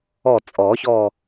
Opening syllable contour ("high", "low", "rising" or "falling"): falling